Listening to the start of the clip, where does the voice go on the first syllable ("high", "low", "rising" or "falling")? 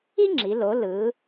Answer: high